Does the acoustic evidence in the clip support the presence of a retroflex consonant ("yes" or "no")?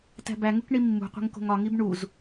yes